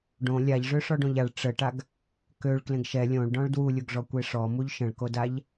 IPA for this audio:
ɖõ lʲaʎʐø ʂɔɖõʎaɭ ʈ͡ʂəʈaɡ | køɭ klẽɡʃɛ lʲõɭɖɔ̃ɭ dwulʲuɡʐɔ kʷeʂɔ muʎʃə̃ɭkodaʎ

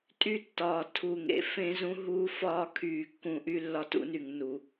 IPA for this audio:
tʼy˦tːɒː˨tʰu˨ ŋḛ˨fẽ˦zũ˦ ɦuː˦fɒː˦kʰyː˨kːũ˨ ʔy˦lːɒ˦tṵ˦ny˨ŋ nu˨

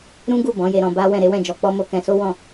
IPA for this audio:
ɾũ˦ɡu˦˨ bɔ̃˨˦je˧ɾɔ̃˧ba˦ wɛ̃˦˨ɾe˨˦wɛ̃˦˨d͡ʒɔ˧ k͡pɔ˦mo˦kɛ̃˧ so˦ wɔ̃˦˨

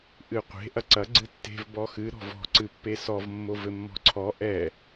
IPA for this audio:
ʔɨqʷe̤ ʔɐǀɐ ɡ͡ǀɨtːe̤v bɔxɨ ɾɔ̤vɔ̤ ǀɨpːesɔv mːovɘmːɔ̤ǀʰɔ ʔɛ

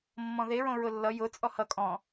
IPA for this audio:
mːɔ̃ðe ɹõɹʊlːʌ jʊ t͡sʼɔhʌ kʼɔ̃

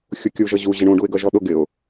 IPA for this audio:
xʲukʲu ʒʌʑu ʑɪɳũ ɖuɪ̯ɡʌʒɔɗʊ ɡɪʊ̯

